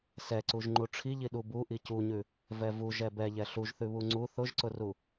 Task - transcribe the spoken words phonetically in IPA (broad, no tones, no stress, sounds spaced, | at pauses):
s ɛ ǀ u ʒ ŋ͡ǃ u ʈ͡ʂʰ i ʎ i ɗ u b u ʔ i c u ɲ ʉ | v ɛ v u ʒ ɛ b ɛ ʎ ɛ ɬ u ʒ θ ʉ β u ŋ͡ǀ u θ ʊ ʒ ǀ ʊ r u